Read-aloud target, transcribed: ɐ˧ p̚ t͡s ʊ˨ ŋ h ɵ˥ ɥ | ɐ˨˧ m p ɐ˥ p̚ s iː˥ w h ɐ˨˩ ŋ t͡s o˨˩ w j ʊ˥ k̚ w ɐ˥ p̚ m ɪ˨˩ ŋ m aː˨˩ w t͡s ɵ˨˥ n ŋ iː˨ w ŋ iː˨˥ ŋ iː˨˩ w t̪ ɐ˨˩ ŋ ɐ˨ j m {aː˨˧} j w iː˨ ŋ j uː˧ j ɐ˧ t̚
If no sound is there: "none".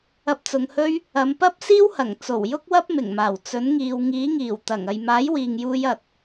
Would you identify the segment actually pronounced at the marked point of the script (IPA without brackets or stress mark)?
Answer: aː˨˥